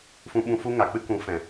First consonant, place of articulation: labial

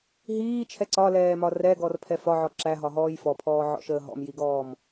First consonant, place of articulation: glottal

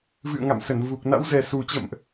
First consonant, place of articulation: labial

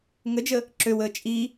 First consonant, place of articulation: velar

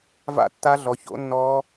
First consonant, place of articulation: labial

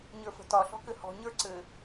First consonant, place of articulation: palatal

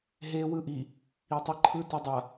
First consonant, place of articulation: glottal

